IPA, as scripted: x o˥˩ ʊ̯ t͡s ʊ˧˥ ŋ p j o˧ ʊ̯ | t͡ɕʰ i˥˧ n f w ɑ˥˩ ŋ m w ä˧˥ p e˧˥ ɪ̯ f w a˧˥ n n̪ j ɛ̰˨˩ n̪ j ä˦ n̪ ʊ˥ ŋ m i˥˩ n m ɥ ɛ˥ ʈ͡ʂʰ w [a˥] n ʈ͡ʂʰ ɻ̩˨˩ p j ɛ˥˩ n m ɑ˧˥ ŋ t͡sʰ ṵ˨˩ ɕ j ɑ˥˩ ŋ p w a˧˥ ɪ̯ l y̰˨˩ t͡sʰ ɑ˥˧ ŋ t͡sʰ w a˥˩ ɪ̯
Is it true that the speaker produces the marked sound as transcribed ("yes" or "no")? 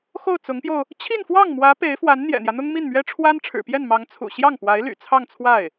yes